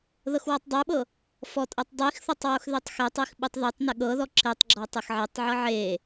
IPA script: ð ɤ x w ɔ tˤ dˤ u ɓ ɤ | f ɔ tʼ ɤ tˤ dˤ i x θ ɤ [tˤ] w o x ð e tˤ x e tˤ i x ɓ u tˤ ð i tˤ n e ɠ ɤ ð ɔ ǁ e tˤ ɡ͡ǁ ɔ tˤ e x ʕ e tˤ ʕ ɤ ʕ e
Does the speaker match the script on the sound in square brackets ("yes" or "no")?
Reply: yes